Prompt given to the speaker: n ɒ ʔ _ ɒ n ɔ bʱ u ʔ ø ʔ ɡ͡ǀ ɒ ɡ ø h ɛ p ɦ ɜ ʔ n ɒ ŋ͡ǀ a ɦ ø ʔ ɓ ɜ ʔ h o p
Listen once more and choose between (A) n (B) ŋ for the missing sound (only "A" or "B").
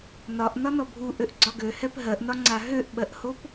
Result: A